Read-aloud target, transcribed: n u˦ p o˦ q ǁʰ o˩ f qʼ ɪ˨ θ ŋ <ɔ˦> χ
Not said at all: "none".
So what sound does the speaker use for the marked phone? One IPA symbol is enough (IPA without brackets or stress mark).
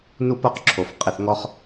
ɔ˦